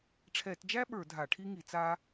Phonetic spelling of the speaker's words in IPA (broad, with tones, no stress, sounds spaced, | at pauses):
ʈ͡ʂʰ ɛ˧˩˧ t d͡ʒ æ˥ ɓ ə˞˧˩˧ dʱ a˧˩˧ ʈʰ i˥ ŋ i˧˩˧ t͡s a˥